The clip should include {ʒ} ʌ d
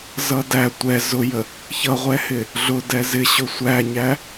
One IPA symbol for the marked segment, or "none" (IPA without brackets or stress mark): z